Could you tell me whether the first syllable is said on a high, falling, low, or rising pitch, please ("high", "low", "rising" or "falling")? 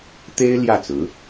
high